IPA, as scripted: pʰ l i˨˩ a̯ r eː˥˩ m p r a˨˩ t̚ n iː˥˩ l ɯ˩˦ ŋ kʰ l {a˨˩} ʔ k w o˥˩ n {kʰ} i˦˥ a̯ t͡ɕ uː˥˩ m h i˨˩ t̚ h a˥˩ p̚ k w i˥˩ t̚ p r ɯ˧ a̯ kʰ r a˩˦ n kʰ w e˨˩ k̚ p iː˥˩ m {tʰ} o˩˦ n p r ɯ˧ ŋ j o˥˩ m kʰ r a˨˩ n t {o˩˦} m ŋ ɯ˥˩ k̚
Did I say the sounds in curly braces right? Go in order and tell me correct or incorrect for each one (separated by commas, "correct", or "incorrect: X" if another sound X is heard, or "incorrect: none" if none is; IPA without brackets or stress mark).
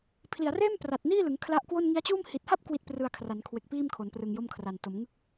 incorrect: a˦˥, incorrect: ŋ, incorrect: kʰ, correct